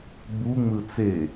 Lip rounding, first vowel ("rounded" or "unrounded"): rounded